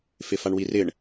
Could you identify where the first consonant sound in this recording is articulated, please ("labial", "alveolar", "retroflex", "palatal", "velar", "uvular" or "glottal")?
labial